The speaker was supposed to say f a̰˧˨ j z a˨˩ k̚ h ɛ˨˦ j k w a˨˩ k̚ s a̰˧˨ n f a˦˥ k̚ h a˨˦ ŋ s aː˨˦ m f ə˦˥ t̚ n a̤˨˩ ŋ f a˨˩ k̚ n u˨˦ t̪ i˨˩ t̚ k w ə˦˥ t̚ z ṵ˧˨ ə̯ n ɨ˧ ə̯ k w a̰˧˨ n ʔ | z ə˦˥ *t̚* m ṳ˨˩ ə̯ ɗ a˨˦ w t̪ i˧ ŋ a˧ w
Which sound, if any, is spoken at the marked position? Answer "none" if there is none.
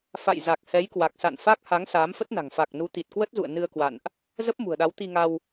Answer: p̚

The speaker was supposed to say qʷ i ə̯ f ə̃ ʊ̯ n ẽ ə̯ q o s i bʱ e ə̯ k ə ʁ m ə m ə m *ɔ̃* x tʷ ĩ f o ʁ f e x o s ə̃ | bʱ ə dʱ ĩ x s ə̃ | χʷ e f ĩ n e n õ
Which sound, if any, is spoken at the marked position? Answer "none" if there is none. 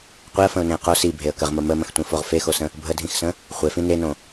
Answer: ə̃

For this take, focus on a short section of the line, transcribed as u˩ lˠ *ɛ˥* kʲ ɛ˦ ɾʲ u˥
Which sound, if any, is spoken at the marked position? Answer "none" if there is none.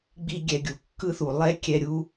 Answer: ɛ˥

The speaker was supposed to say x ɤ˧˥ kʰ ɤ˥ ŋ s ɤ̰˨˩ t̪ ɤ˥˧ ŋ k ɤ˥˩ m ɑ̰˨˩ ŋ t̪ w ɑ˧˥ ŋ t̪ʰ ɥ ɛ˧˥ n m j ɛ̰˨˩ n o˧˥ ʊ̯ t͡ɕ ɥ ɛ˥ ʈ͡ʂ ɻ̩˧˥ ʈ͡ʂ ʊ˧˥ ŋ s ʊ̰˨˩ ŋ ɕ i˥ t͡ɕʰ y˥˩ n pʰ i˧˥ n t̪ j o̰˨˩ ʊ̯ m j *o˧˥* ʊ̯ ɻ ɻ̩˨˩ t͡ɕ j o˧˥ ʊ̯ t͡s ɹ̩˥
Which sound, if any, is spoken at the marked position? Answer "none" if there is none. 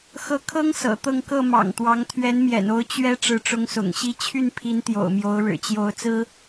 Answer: o˧˥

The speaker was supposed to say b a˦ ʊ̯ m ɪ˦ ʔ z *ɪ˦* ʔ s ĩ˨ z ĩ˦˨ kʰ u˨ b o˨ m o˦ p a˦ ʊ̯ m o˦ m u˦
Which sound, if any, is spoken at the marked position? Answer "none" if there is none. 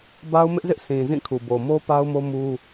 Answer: ɪ˦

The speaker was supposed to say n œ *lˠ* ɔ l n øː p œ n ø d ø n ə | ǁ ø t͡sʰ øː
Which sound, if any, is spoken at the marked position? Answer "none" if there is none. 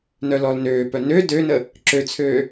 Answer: l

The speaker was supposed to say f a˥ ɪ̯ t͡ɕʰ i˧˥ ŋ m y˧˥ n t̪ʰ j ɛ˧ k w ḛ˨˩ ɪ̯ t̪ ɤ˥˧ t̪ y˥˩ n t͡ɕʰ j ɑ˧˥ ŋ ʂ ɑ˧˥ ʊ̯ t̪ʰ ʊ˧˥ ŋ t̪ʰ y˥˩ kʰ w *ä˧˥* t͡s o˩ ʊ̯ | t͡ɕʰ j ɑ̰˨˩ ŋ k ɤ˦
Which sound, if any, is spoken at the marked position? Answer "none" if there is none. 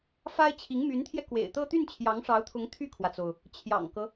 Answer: ä˩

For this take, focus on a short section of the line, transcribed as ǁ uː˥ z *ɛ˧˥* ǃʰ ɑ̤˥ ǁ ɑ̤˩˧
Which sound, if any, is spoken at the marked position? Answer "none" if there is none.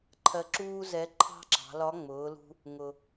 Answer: ɛ˧˥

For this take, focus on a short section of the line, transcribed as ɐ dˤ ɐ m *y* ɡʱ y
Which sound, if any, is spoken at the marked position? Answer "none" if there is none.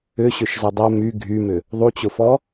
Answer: y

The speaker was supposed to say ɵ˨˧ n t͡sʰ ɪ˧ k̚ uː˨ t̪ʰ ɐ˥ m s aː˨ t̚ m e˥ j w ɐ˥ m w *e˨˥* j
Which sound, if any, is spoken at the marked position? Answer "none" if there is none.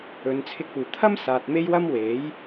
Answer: e˨˥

